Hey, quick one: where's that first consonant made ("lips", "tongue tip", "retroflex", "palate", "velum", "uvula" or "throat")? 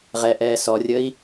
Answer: uvula